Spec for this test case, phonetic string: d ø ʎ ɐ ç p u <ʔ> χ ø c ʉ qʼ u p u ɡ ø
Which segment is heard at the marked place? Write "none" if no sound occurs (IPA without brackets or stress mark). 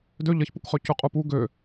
k